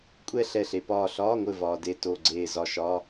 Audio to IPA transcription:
kʷʼɛ˥˧ɬɛ˧˩ɬe˩ pɒː˧˩ɬɒː˧˥˧ŋʷɘ˧˩ vɒː˩de˧˩ to˧˩ɡ͡ǀeː˧˩zɒ˧˩ʃɒ˧˥˧

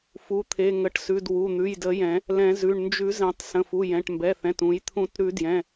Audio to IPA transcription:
fu˩˧˩t̪ʰe˩˧˩ŋə˩˧˩ʈsʉ˩˧˩d wu˩˧˩n̪ʉ˩˧˩jdə˨˩˦jɛ̃˨˩˦ | lɛ̃˨˩˦zʉ˩˧˩ɳ nd͡ʒʉ˨˩˦zɛ̃˨˩˦tˤ sə̃˩˧˩fu˩˧˩ jɛ̃˩˧˩ʈmbɛ˩˧˩θɛ̃˩˧˩t ũ˨˩˦j t̪ʰũ˨˩˦tɾʉ˨˩˦djɛ̃˩˧˩

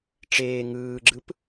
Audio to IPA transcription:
ʈ͡ʂeː ŋɯːɡ͡ǁɯp

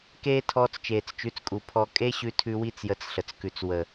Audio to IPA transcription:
keː˦ tʰɔː˧t͡st͡ʃeː˨t͡st͡ʃʉ˨˦t͡skʼu˨ pʰɔ˧ kʼe˦ɕʉ˧tʰʉ˧ wi˦t͡sjə˧t͡sɬə˨t͡skʉ˨t͡s wə˨

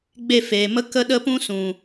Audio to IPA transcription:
ɡ͡be˦˨feː˨mə˦ kə˦ɗə˦pũ˦ sũ˨

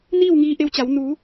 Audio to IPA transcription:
niː˥˨wŋiː˧ʔe˧wt͡ɕa˩˧w nu˩˧

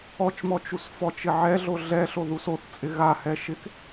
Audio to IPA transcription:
ɔt͡ʃmɔ t͡ʃusfɔt͡ʃɪ ʕɛɮo ɮɛɬo ðusoθt͡sʼɪ ɣahɛ ʃɪk

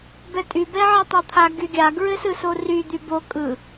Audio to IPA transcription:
bɛtʼy bɛʕɛtˤot̪ʰa ɡyɡʲa ɡɹɘsɯsory d̪ybo kʼɯ

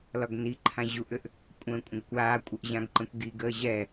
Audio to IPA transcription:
lɒɡniǃʰã ʑuʔʏʔ | kʷʼə̃ːkʷʼə̃ɡkʷaːkʷʼəʔ ʑãɡǃə̃kʷɡiɡəː ʑɛ

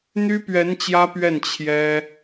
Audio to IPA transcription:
n̪y˥pɥɛ˧˥n t͡ɕjä˥pɥɛ˥˩n t͡ɕʰjɛ˥

